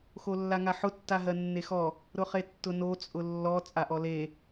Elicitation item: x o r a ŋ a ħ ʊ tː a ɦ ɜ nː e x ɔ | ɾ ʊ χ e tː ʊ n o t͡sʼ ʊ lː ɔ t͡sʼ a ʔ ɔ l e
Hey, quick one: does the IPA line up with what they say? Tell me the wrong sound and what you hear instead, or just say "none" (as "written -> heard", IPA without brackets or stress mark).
r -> lː